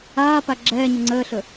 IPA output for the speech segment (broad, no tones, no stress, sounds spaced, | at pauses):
aː p a ɡ͡ǁ ɛː ɲ ə ŋ͡ǀ əː ɬ ɵ